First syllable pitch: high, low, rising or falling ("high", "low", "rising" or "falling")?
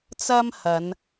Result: high